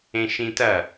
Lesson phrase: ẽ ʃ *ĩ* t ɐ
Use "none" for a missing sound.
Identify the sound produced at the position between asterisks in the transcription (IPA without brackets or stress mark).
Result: ĩ